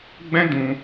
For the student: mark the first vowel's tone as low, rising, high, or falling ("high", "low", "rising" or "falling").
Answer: high